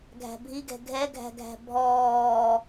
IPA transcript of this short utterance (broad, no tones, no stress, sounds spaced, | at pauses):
ɡʱ æ̤ bʱ i ɡ ɛ̤ ɡʱ ɛ ɡʱ æ̤ ɡʱ æ̤ bʱ ɔː